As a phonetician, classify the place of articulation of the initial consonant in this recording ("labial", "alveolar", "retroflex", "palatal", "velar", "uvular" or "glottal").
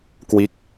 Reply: velar